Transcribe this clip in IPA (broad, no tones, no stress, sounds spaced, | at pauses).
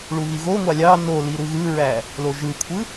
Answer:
ɭ u ɣ i ɣ o ŋʷ ɑ lʲ ɑ n o l i ɾ ɯ ɣ ɯ ɹ æ | l o ʒ ɯ kʷʰ ɯ